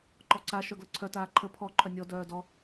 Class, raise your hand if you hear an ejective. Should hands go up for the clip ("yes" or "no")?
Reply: no